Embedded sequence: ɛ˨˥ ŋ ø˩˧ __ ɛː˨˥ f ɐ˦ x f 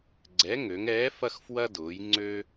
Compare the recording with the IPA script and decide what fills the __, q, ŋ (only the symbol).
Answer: ŋ